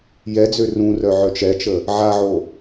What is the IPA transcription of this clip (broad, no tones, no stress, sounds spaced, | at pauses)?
j ɛ d͡z ø r ũ r œ ʕ œ t͡ʃ ɛ t͡ʃ ə | ʕ a ʕ o